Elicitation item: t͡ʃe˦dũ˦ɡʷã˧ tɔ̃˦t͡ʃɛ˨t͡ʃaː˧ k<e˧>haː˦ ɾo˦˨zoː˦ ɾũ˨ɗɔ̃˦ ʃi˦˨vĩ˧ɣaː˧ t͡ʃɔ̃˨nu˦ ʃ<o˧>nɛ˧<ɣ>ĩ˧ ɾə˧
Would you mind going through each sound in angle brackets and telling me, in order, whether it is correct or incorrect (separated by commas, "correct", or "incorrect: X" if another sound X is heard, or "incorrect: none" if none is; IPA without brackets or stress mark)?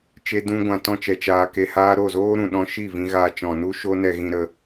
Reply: correct, incorrect: o˦, correct